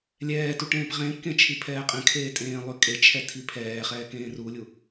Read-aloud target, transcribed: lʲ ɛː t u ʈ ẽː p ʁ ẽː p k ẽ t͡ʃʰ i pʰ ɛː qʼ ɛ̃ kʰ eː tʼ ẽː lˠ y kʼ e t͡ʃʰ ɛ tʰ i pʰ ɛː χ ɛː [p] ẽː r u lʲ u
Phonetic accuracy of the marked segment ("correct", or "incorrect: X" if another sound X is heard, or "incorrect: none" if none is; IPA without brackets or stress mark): incorrect: k